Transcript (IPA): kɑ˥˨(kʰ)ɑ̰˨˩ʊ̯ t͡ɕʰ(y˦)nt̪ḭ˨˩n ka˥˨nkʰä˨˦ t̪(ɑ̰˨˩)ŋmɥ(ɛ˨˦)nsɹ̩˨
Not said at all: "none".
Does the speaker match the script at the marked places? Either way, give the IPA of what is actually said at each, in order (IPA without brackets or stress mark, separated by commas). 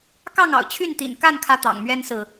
ŋ, y˥˨, ɑ̰˨˩, ɛ˦